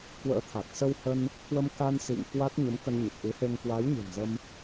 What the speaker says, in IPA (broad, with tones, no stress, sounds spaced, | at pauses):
k w ə̰ː˧˥ t̪ʰ a˨˩ k̚ s ə˧ w h ə˧ n | k w ə˧ m k a˧ n s ḭ˧˨ ŋ k w a˦˥ t̚ ɲ ə˨˦ m k ə˧ n ɲ ə˨˩ p̚ ʔ ɨ˨˦ h e˧ ŋ k w a˨˦ j ɲ ɨ̤˨˩ n z ə˧ m